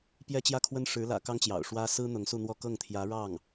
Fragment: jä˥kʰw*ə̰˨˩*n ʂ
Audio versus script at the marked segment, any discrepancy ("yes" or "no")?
yes